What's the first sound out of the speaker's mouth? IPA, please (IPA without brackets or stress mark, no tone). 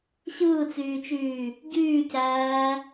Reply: ɕ